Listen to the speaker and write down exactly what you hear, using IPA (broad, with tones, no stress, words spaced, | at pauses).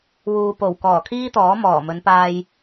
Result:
wuː˧ po˨˩wkɔː˨˩ kʰiː˥t̪ɔː˨˥ mɔː˨˩mɵ˨˧npaː˧j